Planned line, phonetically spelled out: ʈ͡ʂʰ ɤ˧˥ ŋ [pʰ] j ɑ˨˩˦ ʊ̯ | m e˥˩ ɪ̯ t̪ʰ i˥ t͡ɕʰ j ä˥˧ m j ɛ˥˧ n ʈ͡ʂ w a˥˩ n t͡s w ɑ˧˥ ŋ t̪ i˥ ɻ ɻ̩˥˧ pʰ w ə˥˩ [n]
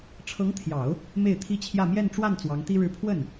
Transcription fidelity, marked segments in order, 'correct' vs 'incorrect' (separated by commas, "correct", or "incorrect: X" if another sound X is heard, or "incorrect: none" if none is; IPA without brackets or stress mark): incorrect: t̪ʰ, correct